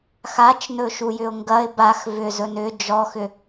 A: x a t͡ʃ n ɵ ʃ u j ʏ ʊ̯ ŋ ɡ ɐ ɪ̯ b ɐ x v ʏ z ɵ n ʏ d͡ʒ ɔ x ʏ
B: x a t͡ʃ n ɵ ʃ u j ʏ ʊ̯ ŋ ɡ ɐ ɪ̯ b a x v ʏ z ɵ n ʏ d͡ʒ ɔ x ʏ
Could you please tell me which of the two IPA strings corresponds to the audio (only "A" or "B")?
B